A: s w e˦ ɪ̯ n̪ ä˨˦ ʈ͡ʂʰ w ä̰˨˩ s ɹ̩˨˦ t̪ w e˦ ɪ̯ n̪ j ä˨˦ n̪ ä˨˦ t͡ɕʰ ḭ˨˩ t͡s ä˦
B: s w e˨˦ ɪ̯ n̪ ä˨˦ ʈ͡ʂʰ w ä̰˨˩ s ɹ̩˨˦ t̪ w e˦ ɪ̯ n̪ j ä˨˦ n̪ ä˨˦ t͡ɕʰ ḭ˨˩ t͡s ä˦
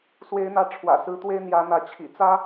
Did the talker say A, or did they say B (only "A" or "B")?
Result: B